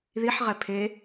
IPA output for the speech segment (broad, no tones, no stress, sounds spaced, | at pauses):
ð i ħ ʁ ɛ pʰ e